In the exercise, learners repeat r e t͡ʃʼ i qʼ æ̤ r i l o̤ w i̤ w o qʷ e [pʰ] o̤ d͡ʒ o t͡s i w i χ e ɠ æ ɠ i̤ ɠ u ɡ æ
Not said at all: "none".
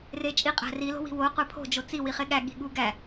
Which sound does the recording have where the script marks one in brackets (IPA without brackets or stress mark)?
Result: pʰ